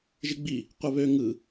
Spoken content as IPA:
ʒ i ɡ͡b i | qʷ ɛ β ø ŋ ɯ

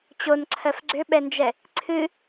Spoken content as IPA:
t͡ɕ o n ǀʰ ɜ f ɡ͡ǀ ʏ ɓ ɛ n d͡ʒ ɛ | ǀʰ ɨ

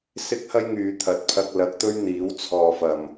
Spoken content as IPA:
s ɪ˥ k̚ h ɐ˥ j ŋ yː˨ t̪ʰ ɐ˨ t̚ pʰ ɐ˧ k̚ l ɐ˨˥ k̚ t̪ ɵ˥ ɥ n̪ iː˨˥ w t͡sʰ ɔː˨ f ɐ˨˩ m

